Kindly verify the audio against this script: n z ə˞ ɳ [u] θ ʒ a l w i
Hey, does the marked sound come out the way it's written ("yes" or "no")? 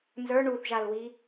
yes